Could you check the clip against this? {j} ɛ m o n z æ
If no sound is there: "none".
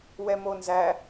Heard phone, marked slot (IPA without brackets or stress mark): w